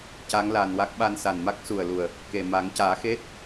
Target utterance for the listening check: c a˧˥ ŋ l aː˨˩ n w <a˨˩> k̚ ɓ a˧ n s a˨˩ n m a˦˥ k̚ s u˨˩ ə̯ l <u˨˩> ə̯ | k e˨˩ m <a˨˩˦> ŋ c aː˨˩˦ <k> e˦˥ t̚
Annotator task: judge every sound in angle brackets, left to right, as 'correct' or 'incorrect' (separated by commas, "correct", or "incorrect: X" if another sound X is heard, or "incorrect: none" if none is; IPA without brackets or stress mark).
incorrect: a˦˥, correct, correct, incorrect: x